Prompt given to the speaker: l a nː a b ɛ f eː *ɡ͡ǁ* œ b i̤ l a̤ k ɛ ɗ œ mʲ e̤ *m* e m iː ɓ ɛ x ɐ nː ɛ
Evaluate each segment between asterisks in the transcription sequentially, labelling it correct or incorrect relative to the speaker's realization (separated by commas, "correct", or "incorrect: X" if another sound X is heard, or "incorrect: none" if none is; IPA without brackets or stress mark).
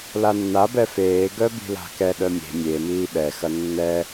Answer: incorrect: ɡ, incorrect: mʲ